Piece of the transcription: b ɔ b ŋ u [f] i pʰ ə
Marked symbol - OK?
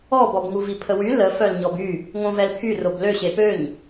no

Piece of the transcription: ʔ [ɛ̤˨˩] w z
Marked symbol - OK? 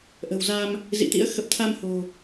no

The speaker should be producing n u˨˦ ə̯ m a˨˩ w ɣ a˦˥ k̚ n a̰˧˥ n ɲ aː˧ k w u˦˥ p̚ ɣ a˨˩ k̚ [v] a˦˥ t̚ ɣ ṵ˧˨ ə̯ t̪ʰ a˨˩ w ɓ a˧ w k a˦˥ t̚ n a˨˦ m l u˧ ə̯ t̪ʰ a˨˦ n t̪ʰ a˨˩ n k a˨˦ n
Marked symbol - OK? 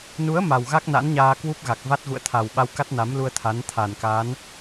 yes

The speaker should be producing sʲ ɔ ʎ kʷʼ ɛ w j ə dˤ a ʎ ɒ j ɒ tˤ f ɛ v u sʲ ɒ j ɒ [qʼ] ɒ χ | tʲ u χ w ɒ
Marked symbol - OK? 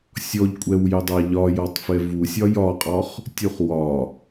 yes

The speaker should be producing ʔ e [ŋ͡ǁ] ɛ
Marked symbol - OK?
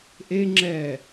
yes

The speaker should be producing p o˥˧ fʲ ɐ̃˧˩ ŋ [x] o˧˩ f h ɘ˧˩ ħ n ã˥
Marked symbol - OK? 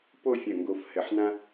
no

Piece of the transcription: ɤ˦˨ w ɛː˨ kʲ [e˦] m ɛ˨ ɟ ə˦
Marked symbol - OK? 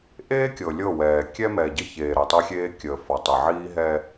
no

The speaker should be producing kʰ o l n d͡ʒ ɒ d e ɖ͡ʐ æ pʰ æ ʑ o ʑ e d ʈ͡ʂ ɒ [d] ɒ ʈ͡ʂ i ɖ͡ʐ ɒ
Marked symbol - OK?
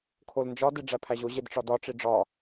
yes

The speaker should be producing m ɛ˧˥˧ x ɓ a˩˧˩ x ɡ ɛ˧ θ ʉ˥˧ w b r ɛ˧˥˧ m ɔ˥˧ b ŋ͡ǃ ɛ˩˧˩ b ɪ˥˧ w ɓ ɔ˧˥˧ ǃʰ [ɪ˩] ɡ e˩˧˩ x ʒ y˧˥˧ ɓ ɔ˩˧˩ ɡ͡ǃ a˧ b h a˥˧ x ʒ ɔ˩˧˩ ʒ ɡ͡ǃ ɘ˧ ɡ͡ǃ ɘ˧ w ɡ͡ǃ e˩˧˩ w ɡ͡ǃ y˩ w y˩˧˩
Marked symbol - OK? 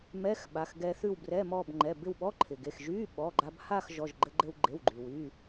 yes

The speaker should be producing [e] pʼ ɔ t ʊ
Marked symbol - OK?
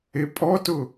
yes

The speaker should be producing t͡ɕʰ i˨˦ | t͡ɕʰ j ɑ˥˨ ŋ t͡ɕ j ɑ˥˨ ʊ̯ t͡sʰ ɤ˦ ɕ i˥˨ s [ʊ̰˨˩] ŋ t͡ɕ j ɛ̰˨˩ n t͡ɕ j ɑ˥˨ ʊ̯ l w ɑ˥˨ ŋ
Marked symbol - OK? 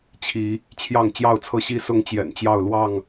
no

